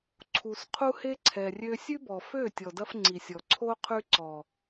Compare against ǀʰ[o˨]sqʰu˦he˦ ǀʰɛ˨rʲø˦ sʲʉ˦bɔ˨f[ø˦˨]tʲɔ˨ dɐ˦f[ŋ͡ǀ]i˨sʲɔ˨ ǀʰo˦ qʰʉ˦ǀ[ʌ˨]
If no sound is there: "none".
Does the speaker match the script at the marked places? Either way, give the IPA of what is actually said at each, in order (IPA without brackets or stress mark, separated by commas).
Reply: u˨, ø˦˨, ŋ͡ǀ, ɔ˨